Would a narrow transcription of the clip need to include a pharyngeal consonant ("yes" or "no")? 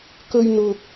no